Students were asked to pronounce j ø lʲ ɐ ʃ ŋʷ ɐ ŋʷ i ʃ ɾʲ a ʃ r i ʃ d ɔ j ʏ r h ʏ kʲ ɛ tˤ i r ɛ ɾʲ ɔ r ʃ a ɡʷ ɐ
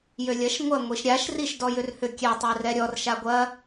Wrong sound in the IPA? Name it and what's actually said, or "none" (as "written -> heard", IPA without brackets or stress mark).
none